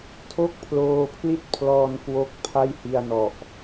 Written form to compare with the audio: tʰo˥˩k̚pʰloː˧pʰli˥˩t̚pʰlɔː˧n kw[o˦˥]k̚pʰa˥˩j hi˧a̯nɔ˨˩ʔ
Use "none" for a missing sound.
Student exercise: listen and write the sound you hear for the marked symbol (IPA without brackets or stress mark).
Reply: o˦˥